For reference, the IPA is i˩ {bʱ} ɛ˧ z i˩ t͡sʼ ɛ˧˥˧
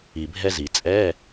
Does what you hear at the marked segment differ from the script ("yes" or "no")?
no